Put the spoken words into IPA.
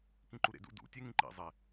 k ĩ ǃ u ɾ ḛ d ṵ d ṵ tʲ e ŋ ĩ ǃ ḭ zˤ e

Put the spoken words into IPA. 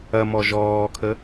ɐ m ɔ ʒ ɔː kʰ ə

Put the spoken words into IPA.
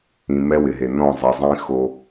ĩ˨ m ɛ˦ w ɪ˨ ɦ e˨ n ɔ̃˦˨ zˤ e˨ zˤ ĩ˦ x o˦

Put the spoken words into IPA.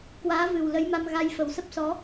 k w aː˨˦ v ɨ˨˩ w l ə˨˦ j m a˧ m ɣ a˧ j f ə˨˩ w s ə˦˥ p̚ s ɔ˨˦

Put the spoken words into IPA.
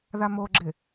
ð a m o ɡ͡ǁ ɪ

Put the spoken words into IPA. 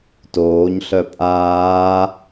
t oː ɲ ɬ œ pʼ aː

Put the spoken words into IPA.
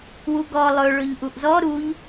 w u ɡ ɔ lˠ ɵ ɭ ɵ ʎ ʔ u ʔ z ɔ ɾ u ʎ

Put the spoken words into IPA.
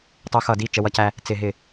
tˤ u˧ x ʌ˧˩˧ d i˥˩ t͡ʃ ə˧ w ʌ˧ c æ˧ | t͡s ɪ˧˩˧ ɦ ɪ˧˩˧

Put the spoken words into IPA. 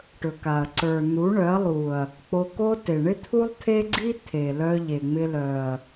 ʈ ɵ˨ k a˨ ɐ̯ ǀ ə˞˨ n̪ u˨˦ ɳ œ˨˦ ɐ̯ lˠ u˨ ɐ̯ | k͡p o˧ k o˦ t e˨ ɳ ɪ˦ t̪ʰ u˦ lˠ t̪ʰ e˦ ɡ͡ǀ i˦ t̪ʰ e˨ l œ˧ ʎ e˨ ŋ͡m ɪ˧ l œ˨ ɐ̯

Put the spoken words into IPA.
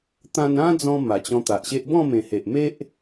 t̪ ã˧ n ã˦ d͡z ɔ̃˧ m a˨˩ t͡ɕ ɔ̃˧ t̪ a˨ ʔ ɕ e˦ ʔ b ɔ̃˥˧ m ẽ˨˩ h e˨ ʔ m e˦ ʔ

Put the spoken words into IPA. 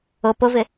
ʊ p ʊ v ɪ

